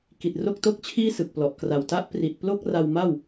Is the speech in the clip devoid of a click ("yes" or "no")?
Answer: yes